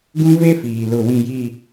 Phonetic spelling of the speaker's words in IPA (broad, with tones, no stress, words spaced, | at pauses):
ɡũ˦ve˦fiː˨ lʊ˦˨wĩ˦˨ji˦˨